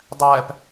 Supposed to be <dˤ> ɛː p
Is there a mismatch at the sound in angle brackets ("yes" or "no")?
no